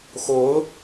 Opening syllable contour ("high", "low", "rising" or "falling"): rising